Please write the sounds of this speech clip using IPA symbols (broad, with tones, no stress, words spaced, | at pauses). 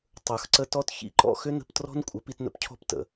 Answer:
tˤə˞˨xǀə˧ tɔ˧t çḭ˧ǃɔ̰˦˨xʏ˦ nə̤˧ptrɔ̤˦n kʷʼə˨˦pi˧tnə̰˦p cʰɔ̤˧ptə̰˨